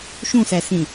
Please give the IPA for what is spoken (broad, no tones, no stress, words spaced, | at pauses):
ʃũsæsĩ